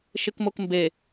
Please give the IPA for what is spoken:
ʃɪkmokmbe

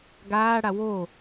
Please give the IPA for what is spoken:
ɡaːɽa wo

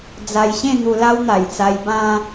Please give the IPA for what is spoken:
d͡za˧jɕẽ˥˧ n̪u˧la˦wn̪a˨˩jt͡sa˧j bã˧

